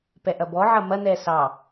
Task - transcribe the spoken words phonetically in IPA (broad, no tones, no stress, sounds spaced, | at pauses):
p ɛ ʔ ɐ b ɔ ʕ ɐ m ɐ n ɛ s ɑ